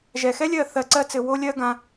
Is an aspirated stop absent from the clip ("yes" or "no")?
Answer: yes